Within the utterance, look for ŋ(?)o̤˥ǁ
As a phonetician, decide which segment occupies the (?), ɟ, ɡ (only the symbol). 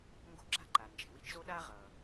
ɡ